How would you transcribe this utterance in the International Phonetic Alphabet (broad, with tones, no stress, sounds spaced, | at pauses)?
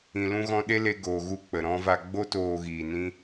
ĩ˨ l ũ˧ ɣ ɔ̃˧ ɗ e˦ l e˧ ɡ oː˨ ɣ u˧ k͡p ə˨ ɾ ɔ̃˧ v a˧ ɡ͡b o˦ t oː˧ ɣ iː˨ n ĩ˦